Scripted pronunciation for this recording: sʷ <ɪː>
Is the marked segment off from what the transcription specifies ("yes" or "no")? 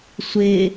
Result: no